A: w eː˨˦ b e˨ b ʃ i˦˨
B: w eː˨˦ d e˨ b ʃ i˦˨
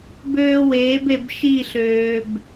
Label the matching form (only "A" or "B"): A